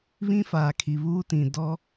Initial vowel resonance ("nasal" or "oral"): nasal